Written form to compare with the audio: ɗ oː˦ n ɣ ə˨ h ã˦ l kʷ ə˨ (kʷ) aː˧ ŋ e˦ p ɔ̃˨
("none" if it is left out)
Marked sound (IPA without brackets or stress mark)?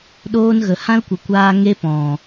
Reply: kʷ